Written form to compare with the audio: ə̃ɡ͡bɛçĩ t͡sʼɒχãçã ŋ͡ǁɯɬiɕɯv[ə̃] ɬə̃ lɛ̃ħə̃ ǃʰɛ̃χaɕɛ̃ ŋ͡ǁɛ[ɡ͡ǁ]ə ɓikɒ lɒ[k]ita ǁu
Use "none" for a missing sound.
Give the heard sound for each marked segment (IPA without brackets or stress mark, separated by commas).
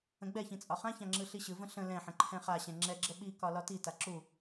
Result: ə̃, ɡ͡ǁ, t